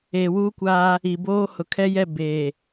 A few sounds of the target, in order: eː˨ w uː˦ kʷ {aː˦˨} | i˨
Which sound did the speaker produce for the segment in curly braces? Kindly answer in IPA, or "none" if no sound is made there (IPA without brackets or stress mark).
aː˦